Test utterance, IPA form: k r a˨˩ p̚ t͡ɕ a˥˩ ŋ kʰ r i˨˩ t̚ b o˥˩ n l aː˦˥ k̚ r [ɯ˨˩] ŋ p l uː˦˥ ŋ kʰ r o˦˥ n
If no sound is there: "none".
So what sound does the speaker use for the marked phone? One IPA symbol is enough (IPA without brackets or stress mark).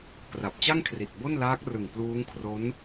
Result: ɯ˨˩